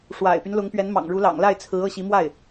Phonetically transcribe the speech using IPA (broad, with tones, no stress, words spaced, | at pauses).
ʂwa̰˨˩ɪ̯py˦n lʊ˧˥ŋpɥɛ˧˥n mɑ̰˨˩ŋɻu˧˥lɑ̰˨˩ŋ la˥˩ɪ̯t͡sʰɹ̩˧˥ ɤ˥˩ɕi˧˥mwa˥˩ɪ̯